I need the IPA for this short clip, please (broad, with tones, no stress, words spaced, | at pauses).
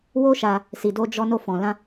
wo˦ʃa˧ | si˨do˧d͡ʒɔ˧ no˧fɔ̃˨lã˧